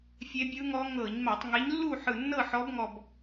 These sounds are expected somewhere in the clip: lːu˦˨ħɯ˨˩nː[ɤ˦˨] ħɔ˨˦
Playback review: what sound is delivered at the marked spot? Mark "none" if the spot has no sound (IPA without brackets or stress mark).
ɤ˦˨